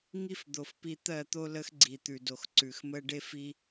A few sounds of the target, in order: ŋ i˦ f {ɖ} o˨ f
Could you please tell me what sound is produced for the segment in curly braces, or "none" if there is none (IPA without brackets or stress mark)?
d̪